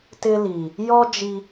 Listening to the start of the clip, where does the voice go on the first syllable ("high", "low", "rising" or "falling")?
high